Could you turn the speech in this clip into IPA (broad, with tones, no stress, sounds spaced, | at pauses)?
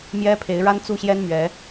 m j ɛ˦ pʰ e˨˦ ɪ̯ ɻ a˦ n t͡s u˥˨ ɕ j ɛ˦ n m ɥ ɛ˨˦